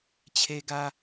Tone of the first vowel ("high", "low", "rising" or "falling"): high